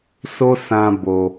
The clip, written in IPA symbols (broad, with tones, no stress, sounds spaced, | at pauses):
s o˦ s ã˧ b o˧